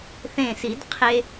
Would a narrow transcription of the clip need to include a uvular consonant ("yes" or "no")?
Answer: yes